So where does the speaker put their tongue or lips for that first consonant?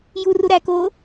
palate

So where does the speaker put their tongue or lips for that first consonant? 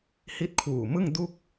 throat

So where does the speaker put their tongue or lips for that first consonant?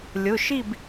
tongue tip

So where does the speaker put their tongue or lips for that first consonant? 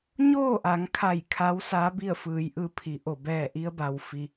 palate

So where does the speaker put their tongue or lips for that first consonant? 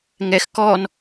velum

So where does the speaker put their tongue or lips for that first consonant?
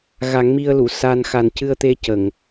velum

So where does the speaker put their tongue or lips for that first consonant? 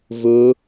lips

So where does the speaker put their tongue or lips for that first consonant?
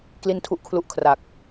velum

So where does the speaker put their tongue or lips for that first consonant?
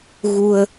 velum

